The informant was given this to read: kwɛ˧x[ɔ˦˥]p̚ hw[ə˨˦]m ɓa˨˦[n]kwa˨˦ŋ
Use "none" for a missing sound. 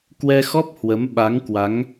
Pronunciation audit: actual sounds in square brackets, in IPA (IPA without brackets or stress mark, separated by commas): ɔ˦˥, ə˨˦, ŋ